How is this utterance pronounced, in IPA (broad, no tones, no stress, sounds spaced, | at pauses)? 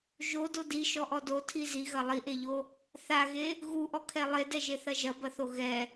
ʒ o d o d i ʃ ɔ ʔ ɔ d o tʰ i z i ɣ ɐ lˠ i ʔ e ʎ o | θ a ɣ e | ɣ u ʔ ɔ kʰ ɛ lˠ e d ɛ ʒ e θ ɐ ʒ ɐ b ɐ θ o ɣ ɛ